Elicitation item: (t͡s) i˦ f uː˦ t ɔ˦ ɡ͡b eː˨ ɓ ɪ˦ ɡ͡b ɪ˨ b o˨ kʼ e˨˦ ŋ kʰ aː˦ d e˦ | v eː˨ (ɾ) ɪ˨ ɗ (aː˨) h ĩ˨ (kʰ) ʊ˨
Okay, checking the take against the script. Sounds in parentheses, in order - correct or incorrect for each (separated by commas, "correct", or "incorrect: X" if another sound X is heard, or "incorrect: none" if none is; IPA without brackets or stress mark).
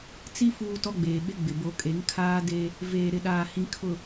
correct, correct, correct, correct